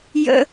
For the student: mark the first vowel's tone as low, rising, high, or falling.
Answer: high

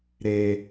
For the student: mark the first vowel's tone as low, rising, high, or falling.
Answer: high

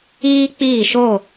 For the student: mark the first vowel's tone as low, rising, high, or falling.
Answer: high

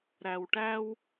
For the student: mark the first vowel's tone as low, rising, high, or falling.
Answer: low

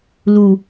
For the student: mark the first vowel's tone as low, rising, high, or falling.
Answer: low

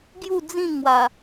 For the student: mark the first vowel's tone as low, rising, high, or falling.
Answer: falling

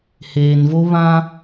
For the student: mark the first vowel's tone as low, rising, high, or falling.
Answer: low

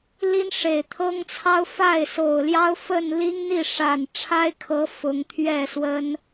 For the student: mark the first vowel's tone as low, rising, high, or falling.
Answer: high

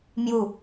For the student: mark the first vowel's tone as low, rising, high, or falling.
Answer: falling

